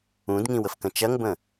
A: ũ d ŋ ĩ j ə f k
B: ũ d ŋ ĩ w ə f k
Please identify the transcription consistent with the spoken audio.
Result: B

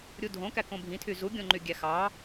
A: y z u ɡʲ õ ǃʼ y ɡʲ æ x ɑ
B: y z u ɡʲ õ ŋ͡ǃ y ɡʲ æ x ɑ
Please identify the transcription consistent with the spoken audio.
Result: B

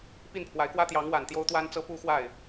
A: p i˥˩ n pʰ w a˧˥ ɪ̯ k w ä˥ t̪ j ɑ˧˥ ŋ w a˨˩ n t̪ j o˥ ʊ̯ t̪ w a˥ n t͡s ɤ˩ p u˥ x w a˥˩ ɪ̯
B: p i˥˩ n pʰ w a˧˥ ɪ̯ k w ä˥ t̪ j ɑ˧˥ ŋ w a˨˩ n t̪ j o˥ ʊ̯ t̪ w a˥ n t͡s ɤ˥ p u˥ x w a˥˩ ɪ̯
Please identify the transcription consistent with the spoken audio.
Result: B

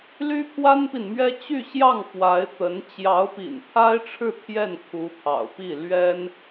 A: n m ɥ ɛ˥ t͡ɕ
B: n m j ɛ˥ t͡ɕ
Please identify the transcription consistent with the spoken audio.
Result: A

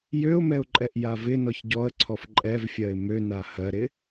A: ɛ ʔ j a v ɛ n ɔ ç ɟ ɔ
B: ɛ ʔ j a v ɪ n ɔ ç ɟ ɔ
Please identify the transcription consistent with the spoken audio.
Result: B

